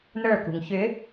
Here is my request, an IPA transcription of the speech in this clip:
n ə˞ k ṳ ŋ ç ʏ

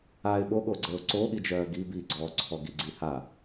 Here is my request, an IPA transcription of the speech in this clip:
a ɪ̯ ɓ o ɠ o ɡ͡ǀ əː ʊ̯ ǀ o ɠ i d͡ʒ œː ɡ i b i ɡ͡ǀ ɔː ǀʰ ɔ ɡ i ɡ͡ǀ i h a

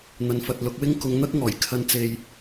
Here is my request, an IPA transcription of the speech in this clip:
n̪ ɐ˧ n f ɐ˧ t̚ l ʊ˧ k̚ w ɪ˥ ŋ k ʊ˧ ŋ n̪ ɐ˥ k̚ ŋ ɔː˨˩ j kʰ ɐ˧ n t͡s e˧ j

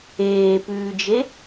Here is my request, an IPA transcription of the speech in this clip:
eː p ʉː d͡ʒ e

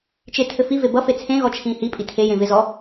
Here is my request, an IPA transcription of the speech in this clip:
t͡ʃ ɪ tʰ ɘ f i v e b ʌ f e t͡sʰ ẽ ɣ ɔ t͡ʃʰ ĩː h i pʼ i tʰ e j ẽ v ɪ z ɔ

